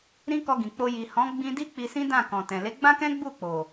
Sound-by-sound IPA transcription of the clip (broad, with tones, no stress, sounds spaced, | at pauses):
ɾ ĩ˦ k ɔ˧ ɡ ĩ˨ k͡p o˧ j i˨ h ɔ̃˨˦ ɡ͡b ĩ˧ d i˦ k͡p i˧ s ĩ˦ d ã˦˨ k ɔ̃˨ t ɛ̃˨ l e˨˦ ɡ͡b ã˦ k ɛ̃˦ ɡ͡b u˦˨ k͡p o˨